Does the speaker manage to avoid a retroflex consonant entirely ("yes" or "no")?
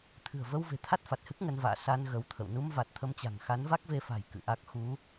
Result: yes